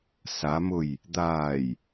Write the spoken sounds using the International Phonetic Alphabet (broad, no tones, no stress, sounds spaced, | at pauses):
s a m ʊ j | d̪ aː j